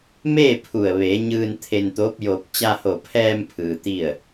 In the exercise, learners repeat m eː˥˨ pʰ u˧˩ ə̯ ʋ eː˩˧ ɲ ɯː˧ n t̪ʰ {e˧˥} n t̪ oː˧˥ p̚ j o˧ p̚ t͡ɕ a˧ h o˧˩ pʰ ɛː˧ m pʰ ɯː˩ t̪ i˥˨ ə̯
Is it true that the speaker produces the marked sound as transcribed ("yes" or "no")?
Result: no